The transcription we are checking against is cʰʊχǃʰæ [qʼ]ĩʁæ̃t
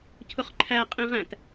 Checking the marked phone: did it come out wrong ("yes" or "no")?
no